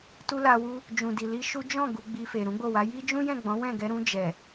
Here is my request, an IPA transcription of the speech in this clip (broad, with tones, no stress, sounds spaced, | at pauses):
t u˦ l a˧ w u˦ | d͡ʒ ũ˨ d i˨ l i˧ ʃ u˦ d͡ʒ ɔ̃˦˨ ɡ u˧ ɡ͡b i˧ f e˨ ɾ ũ˨˦ ɡ͡b o˦˨ w a˨˦ j i˦ d͡ʒ ũ˦ j ɛ̃˦˨ ɡ͡b ɔ̃˨˦ w ɛ̃˦˨ ɡ ɛ˧ ɾ ũ˧ d͡ʒ ɛ˨